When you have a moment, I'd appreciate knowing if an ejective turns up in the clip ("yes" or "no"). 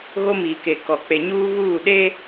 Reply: no